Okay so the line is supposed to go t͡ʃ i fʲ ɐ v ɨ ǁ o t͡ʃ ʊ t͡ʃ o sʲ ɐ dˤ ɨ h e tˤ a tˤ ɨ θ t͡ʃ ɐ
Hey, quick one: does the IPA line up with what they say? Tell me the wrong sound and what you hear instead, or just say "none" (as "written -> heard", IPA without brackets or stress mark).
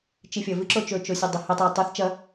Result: ʊ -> ɵ